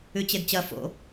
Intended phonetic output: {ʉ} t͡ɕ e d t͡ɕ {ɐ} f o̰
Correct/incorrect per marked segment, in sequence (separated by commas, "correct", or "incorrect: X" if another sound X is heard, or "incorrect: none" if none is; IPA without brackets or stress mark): correct, correct